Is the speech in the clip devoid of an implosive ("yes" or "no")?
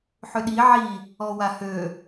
no